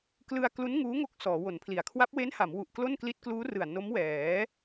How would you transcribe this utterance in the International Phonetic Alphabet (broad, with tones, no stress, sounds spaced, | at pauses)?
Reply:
k l ɯ˧ a̯ k l u˦˥ n ŋ uː˦˥ ŋ o˦˥ k̚ s ɔː˩˦ w o˩˦ n pʰ l i˩˦ a̯ kʰ w a˦˥ p̚ w e˦˥ n h a˩˦ m w u˨˩ ʔ k l o˥˩ n k l i˦˥ t̚ k l uː˦˥ r ɯ˨˩ a̯ n o˦˥ m w ɛː˩˦